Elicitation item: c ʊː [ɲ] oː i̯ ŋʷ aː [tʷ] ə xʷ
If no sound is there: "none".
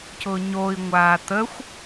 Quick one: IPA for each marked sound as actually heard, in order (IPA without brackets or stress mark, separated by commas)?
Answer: ɲ, t̪